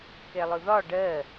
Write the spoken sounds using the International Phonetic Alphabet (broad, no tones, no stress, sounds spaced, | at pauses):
k ɛ lˠ ʊ ð ɒ ɖ ɜ